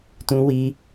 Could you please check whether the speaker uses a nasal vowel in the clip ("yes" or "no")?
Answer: yes